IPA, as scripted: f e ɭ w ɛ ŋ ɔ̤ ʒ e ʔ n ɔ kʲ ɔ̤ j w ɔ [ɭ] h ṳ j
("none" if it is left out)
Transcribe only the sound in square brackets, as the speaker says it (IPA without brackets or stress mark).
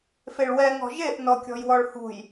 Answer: ɭ